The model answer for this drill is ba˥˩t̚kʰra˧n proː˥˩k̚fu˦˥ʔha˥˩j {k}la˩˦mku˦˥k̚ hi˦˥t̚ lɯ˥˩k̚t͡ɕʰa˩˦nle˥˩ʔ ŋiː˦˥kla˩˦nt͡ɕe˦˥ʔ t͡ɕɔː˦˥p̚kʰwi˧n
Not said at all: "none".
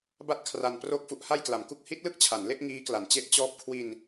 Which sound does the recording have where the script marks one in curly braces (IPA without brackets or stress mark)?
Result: k